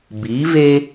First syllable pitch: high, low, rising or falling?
rising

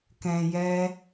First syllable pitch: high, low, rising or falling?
low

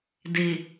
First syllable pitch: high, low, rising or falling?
low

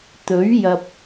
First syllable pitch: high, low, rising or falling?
rising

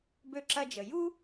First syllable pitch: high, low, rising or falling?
high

